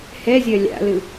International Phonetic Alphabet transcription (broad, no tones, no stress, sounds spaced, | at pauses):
h ɛ zʲ ɜ lʲ a̰ l ɯ